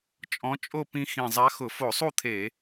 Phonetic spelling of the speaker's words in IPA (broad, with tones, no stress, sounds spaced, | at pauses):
t͡ʃʼ ɔ̃˧˥ t͡ʃʼ o˥˧ p ĩ˧ x ĩ˧˩ zˤ a˧˥ x ʊ˧˩˧ f o˧˩˧ sˤ u˥˧ t̪ʰ e˧˩˧